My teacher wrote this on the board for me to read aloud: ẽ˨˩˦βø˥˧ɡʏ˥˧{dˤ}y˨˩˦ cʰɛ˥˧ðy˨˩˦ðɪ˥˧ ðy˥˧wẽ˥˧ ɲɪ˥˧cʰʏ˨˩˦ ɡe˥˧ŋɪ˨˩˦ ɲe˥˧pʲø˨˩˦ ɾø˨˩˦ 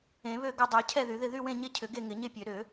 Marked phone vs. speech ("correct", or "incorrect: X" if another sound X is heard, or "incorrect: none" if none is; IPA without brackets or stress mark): correct